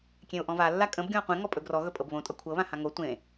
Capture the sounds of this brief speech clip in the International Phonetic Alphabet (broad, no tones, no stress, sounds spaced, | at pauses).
kʲ ẽ ʊ̯ ʔ ɔ̃ v a lː a kʼ ə̃ b ɡʲ ɔ̃ ə̯ qʷ ẽ ŋ ɔ pʼ ɵ ɡ r ɔ ɣ ɵ pʼ ɤ b β õ tʼ ʌ kʷʰ ɤ β ã h ã ŋ o tʷ ẽ